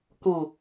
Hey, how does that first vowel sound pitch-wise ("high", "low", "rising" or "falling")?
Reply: low